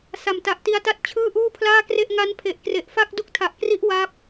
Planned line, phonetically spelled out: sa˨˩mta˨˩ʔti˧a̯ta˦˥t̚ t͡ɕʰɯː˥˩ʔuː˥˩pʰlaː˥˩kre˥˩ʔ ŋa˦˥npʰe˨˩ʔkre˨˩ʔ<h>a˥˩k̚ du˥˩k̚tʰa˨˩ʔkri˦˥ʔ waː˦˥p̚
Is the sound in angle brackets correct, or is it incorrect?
incorrect